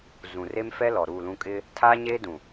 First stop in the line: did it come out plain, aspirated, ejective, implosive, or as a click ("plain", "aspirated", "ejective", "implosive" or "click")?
ejective